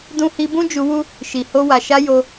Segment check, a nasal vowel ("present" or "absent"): present